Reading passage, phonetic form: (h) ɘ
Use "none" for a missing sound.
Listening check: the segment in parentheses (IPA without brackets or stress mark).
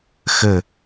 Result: x